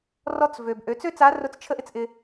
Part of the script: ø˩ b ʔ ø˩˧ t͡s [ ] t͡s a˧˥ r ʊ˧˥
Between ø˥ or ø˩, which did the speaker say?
ø˥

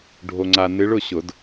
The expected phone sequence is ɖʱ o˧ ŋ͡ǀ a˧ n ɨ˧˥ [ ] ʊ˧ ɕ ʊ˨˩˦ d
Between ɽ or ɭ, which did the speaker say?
ɭ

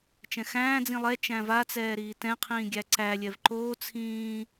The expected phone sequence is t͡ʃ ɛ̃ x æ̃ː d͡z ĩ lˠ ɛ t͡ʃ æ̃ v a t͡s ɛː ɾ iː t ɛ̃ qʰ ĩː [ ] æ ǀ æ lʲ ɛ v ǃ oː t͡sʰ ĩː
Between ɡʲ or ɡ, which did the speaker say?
ɡʲ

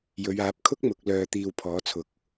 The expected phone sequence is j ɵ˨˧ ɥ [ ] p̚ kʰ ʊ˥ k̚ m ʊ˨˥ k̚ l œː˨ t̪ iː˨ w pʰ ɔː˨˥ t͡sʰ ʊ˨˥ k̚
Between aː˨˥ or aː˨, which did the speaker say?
aː˨˥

